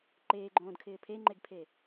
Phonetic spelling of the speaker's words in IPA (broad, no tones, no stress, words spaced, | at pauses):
ǃeːɡ͡ǃõːdkʰɪː pʰeŋ͡ǃeɡpʰe